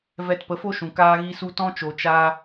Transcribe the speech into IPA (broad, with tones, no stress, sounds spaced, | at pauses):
v ɛ˧ t p ə˨˦ f o˦ ʃ ũ˨ k aː˦ ɣ i˦ s u˦ t ɔ̃˦ t͡ʃ o˨ t͡ʃ a˧